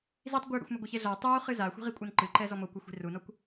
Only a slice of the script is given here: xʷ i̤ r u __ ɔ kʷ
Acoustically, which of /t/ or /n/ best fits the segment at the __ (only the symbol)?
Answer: n